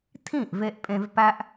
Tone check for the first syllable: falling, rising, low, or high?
falling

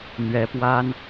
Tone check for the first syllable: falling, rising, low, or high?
rising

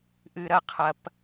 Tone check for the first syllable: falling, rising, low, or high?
low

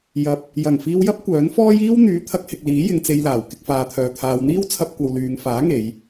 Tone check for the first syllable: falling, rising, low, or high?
low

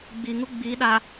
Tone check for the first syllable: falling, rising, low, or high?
low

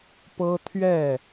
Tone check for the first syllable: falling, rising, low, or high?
high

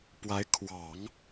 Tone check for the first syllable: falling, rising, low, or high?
rising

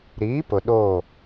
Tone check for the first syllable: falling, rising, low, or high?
rising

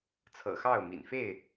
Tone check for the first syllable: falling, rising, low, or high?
low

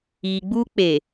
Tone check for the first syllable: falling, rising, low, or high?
low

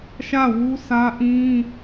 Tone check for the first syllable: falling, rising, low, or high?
falling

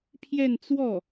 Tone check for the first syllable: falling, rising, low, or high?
falling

